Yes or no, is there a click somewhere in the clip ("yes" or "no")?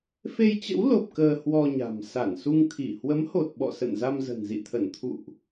no